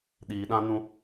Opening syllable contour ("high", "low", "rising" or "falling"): low